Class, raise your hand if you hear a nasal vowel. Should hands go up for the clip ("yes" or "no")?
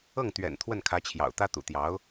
no